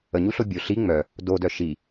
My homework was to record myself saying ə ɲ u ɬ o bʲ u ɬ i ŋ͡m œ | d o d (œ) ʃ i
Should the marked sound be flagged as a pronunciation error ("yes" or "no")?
no